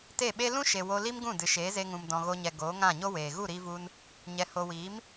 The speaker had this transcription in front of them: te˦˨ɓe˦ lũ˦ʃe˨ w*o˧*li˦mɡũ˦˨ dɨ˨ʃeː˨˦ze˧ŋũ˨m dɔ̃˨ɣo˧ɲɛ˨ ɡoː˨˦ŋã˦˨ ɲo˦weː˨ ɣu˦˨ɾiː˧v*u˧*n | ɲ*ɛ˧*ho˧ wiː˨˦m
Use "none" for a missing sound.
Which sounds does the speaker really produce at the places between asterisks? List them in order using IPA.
o˧, u˧, ɛ˧

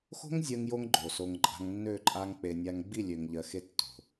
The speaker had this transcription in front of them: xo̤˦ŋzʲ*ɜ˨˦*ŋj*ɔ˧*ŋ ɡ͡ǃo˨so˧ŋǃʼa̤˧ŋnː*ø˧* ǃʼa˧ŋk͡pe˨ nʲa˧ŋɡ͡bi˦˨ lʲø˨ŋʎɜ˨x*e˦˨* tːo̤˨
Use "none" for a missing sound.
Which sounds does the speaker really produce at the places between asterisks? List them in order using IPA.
ɜ˧, o˧, ø˦˨, e˧

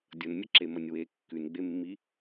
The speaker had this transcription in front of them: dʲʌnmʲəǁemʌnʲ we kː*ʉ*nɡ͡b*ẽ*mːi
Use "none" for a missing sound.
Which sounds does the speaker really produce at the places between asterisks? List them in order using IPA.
ʉ, e

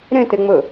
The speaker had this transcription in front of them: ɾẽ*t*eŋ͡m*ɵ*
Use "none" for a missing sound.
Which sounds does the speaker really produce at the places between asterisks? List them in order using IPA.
t, ɵ

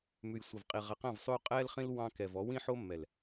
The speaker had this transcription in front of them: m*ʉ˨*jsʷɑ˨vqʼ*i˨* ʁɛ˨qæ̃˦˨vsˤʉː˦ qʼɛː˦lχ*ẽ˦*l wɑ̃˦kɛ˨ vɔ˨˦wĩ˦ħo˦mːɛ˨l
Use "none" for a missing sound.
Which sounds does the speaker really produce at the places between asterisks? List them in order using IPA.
ʉ˨, i˨, ĩ˦

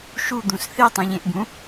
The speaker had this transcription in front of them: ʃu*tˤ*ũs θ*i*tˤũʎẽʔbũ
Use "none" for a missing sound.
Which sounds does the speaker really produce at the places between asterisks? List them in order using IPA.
d̪, i

